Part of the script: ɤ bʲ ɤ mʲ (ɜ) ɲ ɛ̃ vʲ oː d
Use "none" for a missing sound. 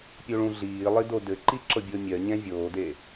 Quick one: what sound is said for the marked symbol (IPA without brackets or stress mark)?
ɜ